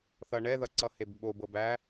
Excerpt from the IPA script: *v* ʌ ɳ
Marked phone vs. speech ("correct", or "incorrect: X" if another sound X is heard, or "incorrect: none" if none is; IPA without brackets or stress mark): incorrect: θ